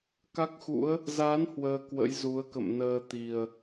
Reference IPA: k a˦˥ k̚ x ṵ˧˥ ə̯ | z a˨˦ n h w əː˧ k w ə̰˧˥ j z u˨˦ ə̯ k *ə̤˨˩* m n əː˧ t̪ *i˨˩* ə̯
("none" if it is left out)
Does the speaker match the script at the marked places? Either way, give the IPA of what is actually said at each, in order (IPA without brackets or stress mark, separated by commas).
ə̰˧˨, i˨˩